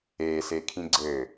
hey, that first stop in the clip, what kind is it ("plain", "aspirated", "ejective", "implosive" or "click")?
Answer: aspirated